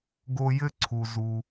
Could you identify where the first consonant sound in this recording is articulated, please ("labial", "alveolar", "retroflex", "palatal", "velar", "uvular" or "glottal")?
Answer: velar